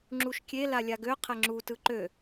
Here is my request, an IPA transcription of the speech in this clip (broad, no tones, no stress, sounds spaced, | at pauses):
ŋ͡ǁ u ʃ kʲ e l a lʲ a ɡ ø qʰ ɛ ŋ͡ǁ u t ɯ ǃ ø